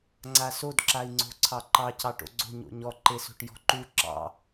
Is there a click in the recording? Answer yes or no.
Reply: yes